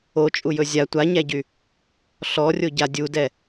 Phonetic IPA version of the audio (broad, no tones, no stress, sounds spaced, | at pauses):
o t͡ʃʼ u j ɵ zʲ a tʷ a ɲ æ ɟ y | ɬ ɔ rʲ o ɟ a dʲ u d ɛ